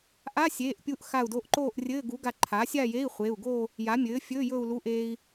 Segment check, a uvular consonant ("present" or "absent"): present